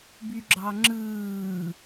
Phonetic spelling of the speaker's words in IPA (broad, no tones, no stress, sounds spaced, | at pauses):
b y ɡ͡ǁ ɑ ŋ͡ǁ ɯː